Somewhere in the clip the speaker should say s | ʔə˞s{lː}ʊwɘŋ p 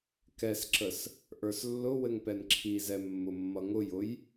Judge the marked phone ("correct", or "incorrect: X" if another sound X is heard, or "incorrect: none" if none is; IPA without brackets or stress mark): correct